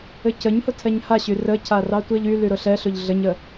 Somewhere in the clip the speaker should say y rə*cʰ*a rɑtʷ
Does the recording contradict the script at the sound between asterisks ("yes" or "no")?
no